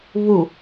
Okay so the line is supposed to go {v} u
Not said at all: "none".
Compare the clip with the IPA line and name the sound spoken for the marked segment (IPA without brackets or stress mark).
β